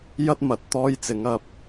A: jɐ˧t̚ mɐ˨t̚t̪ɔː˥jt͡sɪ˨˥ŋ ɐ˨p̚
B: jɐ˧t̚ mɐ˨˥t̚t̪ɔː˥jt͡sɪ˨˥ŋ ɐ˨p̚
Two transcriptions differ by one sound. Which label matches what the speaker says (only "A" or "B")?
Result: A